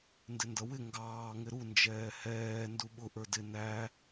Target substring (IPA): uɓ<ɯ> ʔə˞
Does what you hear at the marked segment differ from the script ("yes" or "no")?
yes